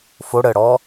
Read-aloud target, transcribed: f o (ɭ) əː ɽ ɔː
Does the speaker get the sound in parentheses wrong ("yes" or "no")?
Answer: yes